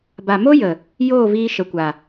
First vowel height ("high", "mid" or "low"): low